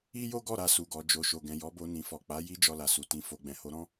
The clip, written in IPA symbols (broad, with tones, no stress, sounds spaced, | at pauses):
i˦ j o˦ ɡ ɔ˦˨ ɾ a˧ s u˨ ɡ ɔ˨ d͡ʒ o˨ ʃ o˨ ɡ ɛ̃˨ j ɔ˨˦ b o˧ n ĩ˨ f ɔ˨ k͡p a˨˦ j i˦ d͡ʒ ɔ˧ l a˨ s u˨ t ĩ˧ f o˨ ɡ͡b ɛ̃˨ h o˧ ɾ ɔ̃˦